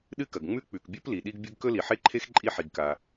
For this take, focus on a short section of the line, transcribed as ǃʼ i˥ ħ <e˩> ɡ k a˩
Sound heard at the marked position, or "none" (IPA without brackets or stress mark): i˩